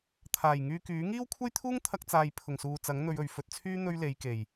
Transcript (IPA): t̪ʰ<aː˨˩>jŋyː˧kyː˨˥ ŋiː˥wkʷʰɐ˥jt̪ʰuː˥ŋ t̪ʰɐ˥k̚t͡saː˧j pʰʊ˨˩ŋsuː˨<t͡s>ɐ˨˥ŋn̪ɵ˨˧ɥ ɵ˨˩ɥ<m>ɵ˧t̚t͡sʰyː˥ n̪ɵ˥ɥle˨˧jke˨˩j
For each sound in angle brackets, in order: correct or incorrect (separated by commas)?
correct, correct, incorrect